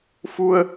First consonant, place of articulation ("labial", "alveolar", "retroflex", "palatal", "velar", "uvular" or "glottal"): labial